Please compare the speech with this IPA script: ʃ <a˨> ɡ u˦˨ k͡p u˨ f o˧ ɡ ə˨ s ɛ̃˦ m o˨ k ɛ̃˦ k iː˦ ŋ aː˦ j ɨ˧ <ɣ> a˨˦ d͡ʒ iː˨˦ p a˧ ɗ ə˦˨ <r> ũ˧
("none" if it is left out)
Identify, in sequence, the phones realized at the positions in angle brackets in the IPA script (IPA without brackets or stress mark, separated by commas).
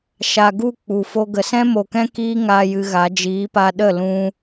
a˨, ɣ, l